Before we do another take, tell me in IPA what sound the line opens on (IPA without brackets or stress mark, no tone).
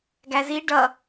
ɡ